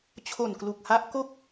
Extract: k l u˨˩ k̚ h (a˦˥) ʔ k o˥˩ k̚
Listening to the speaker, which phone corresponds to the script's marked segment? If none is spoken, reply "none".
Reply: a˦˥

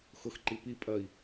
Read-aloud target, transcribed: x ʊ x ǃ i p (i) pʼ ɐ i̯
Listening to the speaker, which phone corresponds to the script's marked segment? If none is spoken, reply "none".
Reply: i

